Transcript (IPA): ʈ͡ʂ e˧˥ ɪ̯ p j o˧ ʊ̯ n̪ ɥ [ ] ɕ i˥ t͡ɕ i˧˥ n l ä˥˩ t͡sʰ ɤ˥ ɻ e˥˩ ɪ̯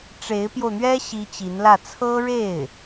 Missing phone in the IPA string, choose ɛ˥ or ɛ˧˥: ɛ˥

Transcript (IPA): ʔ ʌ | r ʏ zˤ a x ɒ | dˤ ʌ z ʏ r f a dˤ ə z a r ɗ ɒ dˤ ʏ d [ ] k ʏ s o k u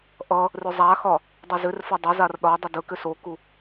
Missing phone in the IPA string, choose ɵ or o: ɵ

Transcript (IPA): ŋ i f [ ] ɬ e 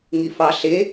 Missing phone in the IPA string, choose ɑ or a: ɑ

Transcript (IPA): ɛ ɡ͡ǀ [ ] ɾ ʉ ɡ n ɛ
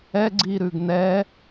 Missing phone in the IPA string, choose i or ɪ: i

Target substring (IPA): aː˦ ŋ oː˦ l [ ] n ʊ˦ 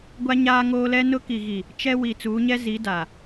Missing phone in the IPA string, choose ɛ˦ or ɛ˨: ɛ˦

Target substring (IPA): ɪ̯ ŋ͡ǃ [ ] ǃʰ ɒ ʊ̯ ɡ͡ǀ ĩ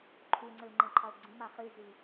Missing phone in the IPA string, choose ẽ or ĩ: ẽ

